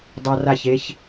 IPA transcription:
dˤ a˧ r a˦˨ ç e˦ ç

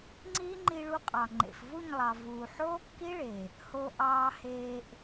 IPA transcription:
ŋ͡ǀ iː˦ ŋ͡ǃ i˧ ɭ u˧ qʼ ɑ˨ ŋ͡ǃ ḛ˨ f v u˦˨ ɲ lˠ ɑ˨ v uː˨ ħ oː˦ kː i˦ ɭ e˨ | h o˧ ʔ ɑː˧ h eː˧ ʔ

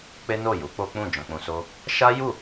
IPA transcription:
k͡p e˦ n o˦˨ j u˨˦ k͡p o˦ k͡p ũ˦˨ d͡ʒ ɔ̃˧ k͡p ũ˧ s o˦ | ʃ a˦ j u˦˨

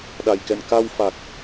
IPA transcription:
ɗ a˨˩ j k ɛ̰˧˨ n k a˧ w f a˨˩ k̚

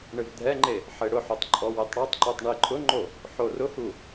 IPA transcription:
ɳ ɪ v dʱ ɛ ŋ͡ǃ e | ħ e ɽ ʊ ħ o tˤ ǃʼ ɔ w e tˤ ɽ ɔ tˤ ǃ u tˤ ɳ i ǃʼ ʊ ŋ͡ǃ o | ħ o r ʊ h u

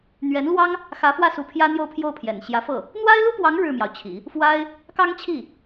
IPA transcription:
n̪ ɥ ɛ˧˥ n l w ɑ˥ ŋ | x ä˧˥ f w ä˥˩ s u˧˥ pʰ j ä˥ n̪ j o˥˧ ʊ̯ pʰ j o˥˩ ʊ̯ pʰ j ɛ̰˨˩ n ɕ j ä˧˥ f ɤ˥˩ | n̪ w a˥ ɪ̯ l u˥ p w ɑ˧˥ ŋ ɻ ɻ̩˥˩ m j ɑ˩ ʊ̯ t͡ɕʰ ḭ˨˩˦ | f w a˥ ɪ̯ | k ɑ˥ ŋ t͡ɕʰ i˥˩

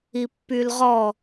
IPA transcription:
i pː y l ʁ ɔ

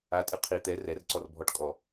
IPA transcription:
a tʼ ɨ qʰ i t̪ ɛ r ɛ r ǀ ɔ r bʱ ɔ ʈ kʼ ɔ

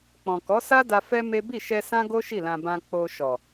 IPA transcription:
k͡p ɔ̃˨ k ɔ˨˦ s a˦ d a˧ f ɛ˦ m e˦ b i˦˨ ʃ ɛ˧ s ã˦ ɡ o˦ ʃ i˦˨ l ã˧ b ã˧ k͡p o˧ ʃ ɔ˨

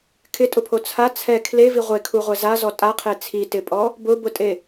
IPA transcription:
kʰ ɪ tʼ ʊ pʰ o t͡sʰ a t͡sʰ ɛ kʰ l e v i ʁʷ e kʰ u ʁʷ ɛ z a z ɔ tʼ a qʰ e t͡sʰ i t ɪ pʼ ɔ | b ʊ b ʊ tʼ e

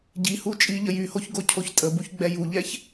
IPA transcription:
ɟ i h u t͡ʃʼ i ʎ ə j y h o ç ɡ o cʰ o ç tʼ ə b u ç ɡ͡b ɛ j u ʎ ɛ ç

